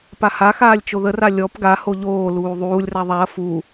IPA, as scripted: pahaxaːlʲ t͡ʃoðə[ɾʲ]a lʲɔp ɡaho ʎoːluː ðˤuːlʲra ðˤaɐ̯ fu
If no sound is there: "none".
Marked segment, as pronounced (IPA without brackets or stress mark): r